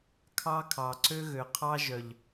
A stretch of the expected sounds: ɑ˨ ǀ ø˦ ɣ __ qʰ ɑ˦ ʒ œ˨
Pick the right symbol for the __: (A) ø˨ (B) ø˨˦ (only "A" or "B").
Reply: A